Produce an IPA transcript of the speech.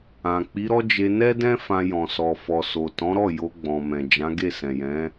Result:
ã˨ k͡p i˨˦ ɾ ɔ˦ d͡ʒ e˧ n ɛ˦ d ɛ̃˦ f ã˧ j ɔ̃˨ s ɔ˨ f ɔ˨ s o˨ t ɔ̃˨˦ ɾ ɔ˦˨ j o˧ ɡ͡b ɔ̃˨ m ɛ̃˨ d͡ʒ ã˨˦ ɡ e˦˨ s ɛ̃˨ j ɛ̃˨˦

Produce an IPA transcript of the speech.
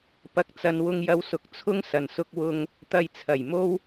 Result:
p ɐ˨ k̚ t͡s ɐ˨ n w ʊ˧ ŋ j ɐ˧ w s ʊ˨˥ k̚ t͡sʰ ʊ˥ ŋ s ɐ˨˩ n s ʊ˧ k̚ w ʊ˨ ŋ | t̪ ɐ˨ j t͡sʰ ɐ˨˩ j m o˧ w

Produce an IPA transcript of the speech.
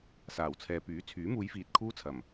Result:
s aː˨˩ w t͡sʰ ɛː˨ p yː˨˥ t͡sʰ yː˨˥ m uː˨˧ j f iː˨ t̚ kʰ uː˥ t͡sʰ ɐ˨˩ m

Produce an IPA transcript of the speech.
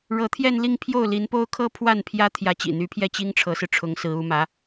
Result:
ɻ ɤ˧˥ t̪ʰ j ɛ˥˧ n l i˥˧ ŋ pʰ j o˥˩ ʊ̯ l i˧˥ n p o˥ ʊ̯ kʰ ɤ˥ pʰ w a˥˩ n pʰ j ä˥ t̪ʰ j ä˧˥ t͡ɕ ḭ˨˩ n̪ y˧˥ pʰ j ɛ˥˩ t͡ɕ i˥ ŋ ʈ͡ʂʰ ɤ˧˥ s ɹ̩˧ ʈ͡ʂʰ ʊ˧˥ ŋ s ɹ̩˧˥ u˧˥ m ä˧˥

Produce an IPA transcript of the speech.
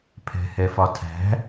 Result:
pʰ ɛ̤ h ɛ f ɒ tʰ æ̤

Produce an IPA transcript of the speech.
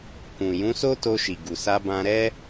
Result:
k ũ˨ j ũ˨˦ s o˦ t o˧ ʃ i˨ ɡ u˨ s a˧ b ã˧ ɾ ɛ˦

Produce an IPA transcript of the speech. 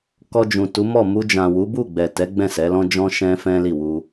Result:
k ɔ˧ d͡ʒ ũ˨ t u˨˦ m ɔ˦˨ m u˧ d͡ʒ ã˨ w u˨˦ b u˦˨ ɡ͡b ɛ˨ t ɛ˨˦ ɡ͡b ɛ̃˦˨ s ɛ˨˦ l ɔ̃˦ d͡ʒ ɔ̃˦ ʃ ɛ̃˦ f ɛ̃˦ l i˦˨ w u˧

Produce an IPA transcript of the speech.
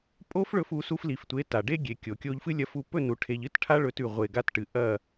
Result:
pʼ o˦ f ɭ ɵ˧ f u˨˦ s u˧ f l i˨ f tʷ e˨˦ t a˨ ɖ e˦ ɡʲ e˨ kʲ o˨ kʲ o˧ ʎ f ɨ˦ lʲ ɐ˧ f u˧ p ɵ˦˨ n u˨ ʈʰ e˨ ʎ ɨ˦ t ʈʰ a˦ ɭ ɵ˧ t ʉ˨ ʁʷ e˨ ɡ a˧ t ʈ ɨ˨ ʔ ɐ˦˨

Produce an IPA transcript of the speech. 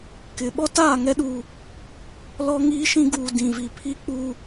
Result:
k ɪ˨ ɓ ɔ˦ t aː˦˨ ŋ ɛ˦ ɗ u˨ | l ɔ˦ ŋ iː˦ ʃ ĩ˦ ɡ uː˨ d ĩ˨ v i˨ pʰ i˦ k͡p u˦

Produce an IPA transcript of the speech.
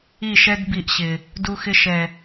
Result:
i˦˨ ʃ ɛ˦ d b i˧ ʔ ɕ ɪ˨ | d u˧ x ɪ˧ ʃ ɛ˨

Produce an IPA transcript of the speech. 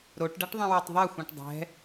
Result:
ɾ o ʈ ɖ a ʈ ðˤ ĩ w o tˤ ðˤ ɛ xʷ ũ ʈ dˤ ɛ̤

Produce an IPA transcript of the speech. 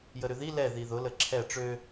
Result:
j ə ɾ ʏ ð i l ɛ ð i ð ʊ l ə ǁʰ ɛ ʈ͡ʂ ø

